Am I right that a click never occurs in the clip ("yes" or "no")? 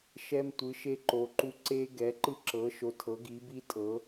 no